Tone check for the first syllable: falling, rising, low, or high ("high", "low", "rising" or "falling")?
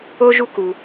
high